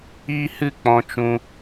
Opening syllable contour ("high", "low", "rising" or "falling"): high